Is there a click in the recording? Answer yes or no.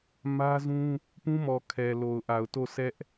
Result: no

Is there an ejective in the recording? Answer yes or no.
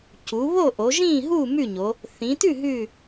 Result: no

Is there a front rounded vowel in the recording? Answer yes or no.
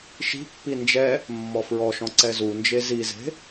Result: no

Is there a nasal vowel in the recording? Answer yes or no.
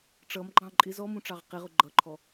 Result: yes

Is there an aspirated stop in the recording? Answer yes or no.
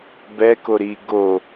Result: no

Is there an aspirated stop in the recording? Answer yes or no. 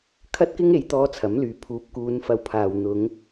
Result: yes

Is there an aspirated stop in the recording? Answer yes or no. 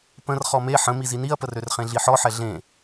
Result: no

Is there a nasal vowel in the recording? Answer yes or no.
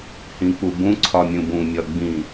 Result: yes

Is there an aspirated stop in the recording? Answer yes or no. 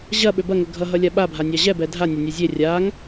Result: no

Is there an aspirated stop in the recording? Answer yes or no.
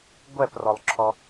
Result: yes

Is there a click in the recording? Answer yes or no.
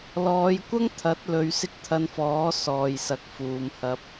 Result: no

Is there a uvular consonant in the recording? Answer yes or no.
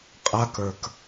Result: yes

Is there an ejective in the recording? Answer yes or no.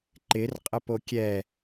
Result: yes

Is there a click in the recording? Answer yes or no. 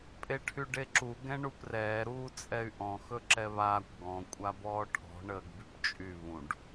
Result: yes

